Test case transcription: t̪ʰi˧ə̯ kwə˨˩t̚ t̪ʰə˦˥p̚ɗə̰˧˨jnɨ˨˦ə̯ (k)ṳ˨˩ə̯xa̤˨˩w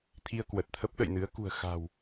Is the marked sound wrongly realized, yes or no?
no